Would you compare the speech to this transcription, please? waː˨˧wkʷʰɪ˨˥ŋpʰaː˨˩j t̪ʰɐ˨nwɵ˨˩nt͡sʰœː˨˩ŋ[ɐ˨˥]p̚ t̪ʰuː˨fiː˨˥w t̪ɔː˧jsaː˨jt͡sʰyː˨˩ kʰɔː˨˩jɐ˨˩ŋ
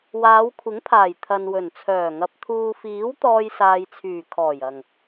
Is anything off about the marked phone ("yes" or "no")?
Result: no